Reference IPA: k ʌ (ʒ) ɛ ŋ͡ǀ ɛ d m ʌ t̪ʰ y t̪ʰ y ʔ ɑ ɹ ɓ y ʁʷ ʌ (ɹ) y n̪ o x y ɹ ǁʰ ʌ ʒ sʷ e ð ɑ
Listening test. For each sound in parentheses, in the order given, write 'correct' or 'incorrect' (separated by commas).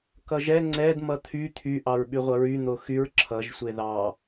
correct, correct